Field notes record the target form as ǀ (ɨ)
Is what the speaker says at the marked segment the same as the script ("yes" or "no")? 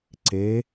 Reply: no